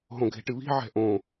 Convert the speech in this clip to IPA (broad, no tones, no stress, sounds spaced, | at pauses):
ɦ õ ɡʱ e̤ ʈ ɨ β i̤ ʕ ɛ̤ ʔ õ